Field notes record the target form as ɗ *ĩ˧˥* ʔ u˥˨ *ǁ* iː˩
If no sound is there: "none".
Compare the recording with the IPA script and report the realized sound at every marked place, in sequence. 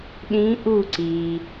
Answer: ĩ˧˥, ǀ

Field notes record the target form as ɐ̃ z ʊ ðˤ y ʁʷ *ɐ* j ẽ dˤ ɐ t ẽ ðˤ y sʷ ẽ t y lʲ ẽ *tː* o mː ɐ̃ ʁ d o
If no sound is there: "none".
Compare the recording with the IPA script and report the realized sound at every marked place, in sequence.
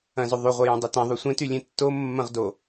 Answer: ɐ, tː

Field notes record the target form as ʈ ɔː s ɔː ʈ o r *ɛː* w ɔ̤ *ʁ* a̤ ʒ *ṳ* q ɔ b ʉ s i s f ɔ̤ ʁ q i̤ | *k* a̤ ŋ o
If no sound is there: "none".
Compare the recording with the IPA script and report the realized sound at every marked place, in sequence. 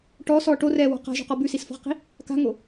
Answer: ɛː, q, ṳ, k

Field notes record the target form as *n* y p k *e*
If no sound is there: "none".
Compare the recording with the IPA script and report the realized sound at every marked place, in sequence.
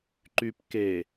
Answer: ǃ, e

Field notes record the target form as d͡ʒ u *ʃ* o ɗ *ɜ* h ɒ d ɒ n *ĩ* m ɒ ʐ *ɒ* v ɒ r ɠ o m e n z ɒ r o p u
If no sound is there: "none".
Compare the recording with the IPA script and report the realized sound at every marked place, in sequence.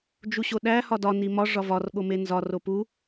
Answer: ɕ, æ, i, ɒ

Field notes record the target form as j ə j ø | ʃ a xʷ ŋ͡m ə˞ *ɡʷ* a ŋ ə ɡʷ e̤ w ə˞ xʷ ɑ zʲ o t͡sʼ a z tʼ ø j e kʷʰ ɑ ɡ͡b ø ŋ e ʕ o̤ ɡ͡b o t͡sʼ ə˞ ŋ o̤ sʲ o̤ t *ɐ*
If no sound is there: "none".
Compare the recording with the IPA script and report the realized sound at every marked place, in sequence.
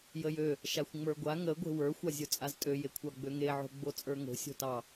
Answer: ɡʷ, ɑ

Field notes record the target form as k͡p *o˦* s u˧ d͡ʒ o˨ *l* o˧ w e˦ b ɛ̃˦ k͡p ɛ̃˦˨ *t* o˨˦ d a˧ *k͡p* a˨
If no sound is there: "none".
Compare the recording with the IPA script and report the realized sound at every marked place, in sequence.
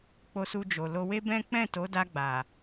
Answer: o˧, l, t, ɡ͡b

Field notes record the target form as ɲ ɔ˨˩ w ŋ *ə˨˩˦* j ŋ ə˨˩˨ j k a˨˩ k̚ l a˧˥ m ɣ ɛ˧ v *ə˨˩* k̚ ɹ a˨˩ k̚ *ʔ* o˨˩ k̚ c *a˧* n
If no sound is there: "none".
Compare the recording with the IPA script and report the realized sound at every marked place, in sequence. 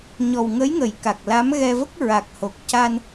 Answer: ə˧˥, ə˦˥, h, a˧

